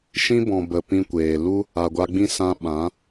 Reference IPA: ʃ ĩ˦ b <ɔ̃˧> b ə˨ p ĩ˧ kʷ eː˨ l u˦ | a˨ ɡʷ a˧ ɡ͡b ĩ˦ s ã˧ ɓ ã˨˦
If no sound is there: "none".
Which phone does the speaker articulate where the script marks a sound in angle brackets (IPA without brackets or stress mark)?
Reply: ɔ̃˨